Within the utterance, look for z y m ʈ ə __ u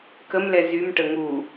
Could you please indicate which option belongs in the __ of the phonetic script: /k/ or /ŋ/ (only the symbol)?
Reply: ŋ